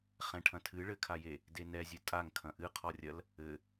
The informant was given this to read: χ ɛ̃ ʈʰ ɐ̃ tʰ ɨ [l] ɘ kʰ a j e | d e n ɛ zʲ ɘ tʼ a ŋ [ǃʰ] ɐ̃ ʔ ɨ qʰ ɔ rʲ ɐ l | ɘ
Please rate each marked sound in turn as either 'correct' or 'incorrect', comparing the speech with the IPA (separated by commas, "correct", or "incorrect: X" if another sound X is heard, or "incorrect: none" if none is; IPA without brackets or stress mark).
incorrect: ɭ, incorrect: kʰ